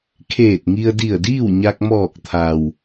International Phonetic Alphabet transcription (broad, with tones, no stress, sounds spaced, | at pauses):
kʰ eː˧˩ t̚ ŋ i˧ ə̯ d i˧˩ ə̯ d iː˥˨ w ɲ a˧ k̚ m ɔː˧˩ k̚ t̪ʰ a˩ w